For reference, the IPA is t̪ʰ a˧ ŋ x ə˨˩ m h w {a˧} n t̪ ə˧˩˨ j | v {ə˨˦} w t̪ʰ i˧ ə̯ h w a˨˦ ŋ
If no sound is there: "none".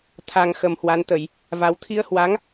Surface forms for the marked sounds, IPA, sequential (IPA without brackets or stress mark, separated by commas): a˧, a˨˦